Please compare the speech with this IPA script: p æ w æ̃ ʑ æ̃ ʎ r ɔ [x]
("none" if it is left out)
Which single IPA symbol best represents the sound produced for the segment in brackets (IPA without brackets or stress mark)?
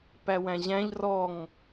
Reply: ŋ